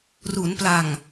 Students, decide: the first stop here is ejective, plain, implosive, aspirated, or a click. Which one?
plain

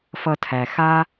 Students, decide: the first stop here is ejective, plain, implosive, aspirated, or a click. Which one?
aspirated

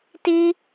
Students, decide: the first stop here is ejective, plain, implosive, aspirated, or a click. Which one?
plain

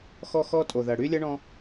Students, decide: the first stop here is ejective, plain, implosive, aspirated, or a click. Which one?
ejective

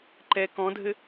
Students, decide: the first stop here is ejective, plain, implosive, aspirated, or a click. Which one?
click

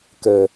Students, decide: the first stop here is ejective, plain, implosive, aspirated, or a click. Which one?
plain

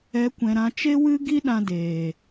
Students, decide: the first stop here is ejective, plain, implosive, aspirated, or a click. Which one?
plain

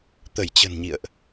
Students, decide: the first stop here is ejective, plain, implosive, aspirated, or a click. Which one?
plain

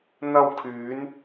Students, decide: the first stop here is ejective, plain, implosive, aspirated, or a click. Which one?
aspirated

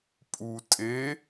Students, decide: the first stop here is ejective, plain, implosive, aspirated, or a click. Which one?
ejective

